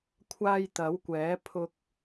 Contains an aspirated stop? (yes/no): yes